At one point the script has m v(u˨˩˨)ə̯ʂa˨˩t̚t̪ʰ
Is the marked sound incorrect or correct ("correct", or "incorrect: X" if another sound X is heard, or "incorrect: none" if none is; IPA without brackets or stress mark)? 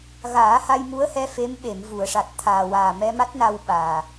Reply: correct